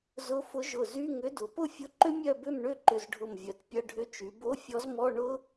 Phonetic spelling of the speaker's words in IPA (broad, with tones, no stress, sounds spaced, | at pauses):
z ʊ˧˥ f ʊ˧˥ ʒ ʊ˧˩ z y˧˥˧ ŋ ʏ˧˥ d ʊ˩˧ p ʊ˥˨ fʲ ʊ˧˥˧ ǃ ʏ˥ mʲ œ˥˨ b ʏ˥˨ m ɳ ʏ˥˨ ǃ ʏ˧˩ z ɖʱ ʊ˧˩ m vʲ œ˩˧ t pʲ ɐ˧˥˧ ɖʱ ʏ˧˥˧ t͡ʃ y˩˧ b o˧˥˧ fʲ ɔ˧˥ z m ɔ˧˥˧ ɳ ʊ˥